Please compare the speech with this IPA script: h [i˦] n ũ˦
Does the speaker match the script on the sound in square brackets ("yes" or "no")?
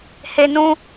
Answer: no